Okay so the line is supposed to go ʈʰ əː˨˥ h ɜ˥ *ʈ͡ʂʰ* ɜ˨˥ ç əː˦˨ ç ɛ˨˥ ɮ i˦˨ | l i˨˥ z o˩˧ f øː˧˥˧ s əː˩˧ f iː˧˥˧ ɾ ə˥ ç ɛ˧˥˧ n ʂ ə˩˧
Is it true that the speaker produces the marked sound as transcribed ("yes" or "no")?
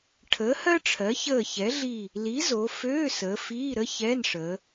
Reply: yes